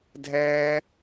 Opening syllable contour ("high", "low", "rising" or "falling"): high